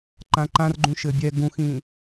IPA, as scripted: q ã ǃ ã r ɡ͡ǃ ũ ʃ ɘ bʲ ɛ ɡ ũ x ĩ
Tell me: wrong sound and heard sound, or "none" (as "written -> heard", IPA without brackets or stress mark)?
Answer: q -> ǃ